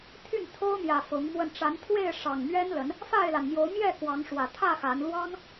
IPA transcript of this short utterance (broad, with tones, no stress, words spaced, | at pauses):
t̪ʰy˥˨nt̪ʰo˦ʊ̯ mjä˨˩ fʊ˨˦ŋmwə˧n ʈ͡ʂa˨˦nt̪ʰwe˥˨ɪ̯ ʂɑ˨˩ŋmɥɛ˦nlə˨˦n | fa˥˨ɪ̯la˩nmjo˨˦ʊ̯ mjɛ˥˨ kwɑ˨˦ŋʂwä˨˩ t̪ʰä˥˨ xa˨˦n lwɑ˦ŋ